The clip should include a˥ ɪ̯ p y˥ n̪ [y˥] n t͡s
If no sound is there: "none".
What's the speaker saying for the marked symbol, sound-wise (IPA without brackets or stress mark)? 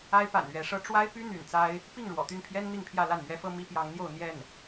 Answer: y̰˨˩